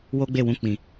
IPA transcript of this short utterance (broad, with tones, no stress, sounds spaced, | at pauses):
w o˦ ɡ͡b e˦˨ w ũ˧ k͡p ĩ˨